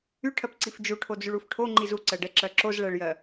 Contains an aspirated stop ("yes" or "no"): yes